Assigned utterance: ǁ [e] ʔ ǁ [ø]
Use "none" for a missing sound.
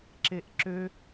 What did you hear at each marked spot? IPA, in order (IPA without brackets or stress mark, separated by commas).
e, ø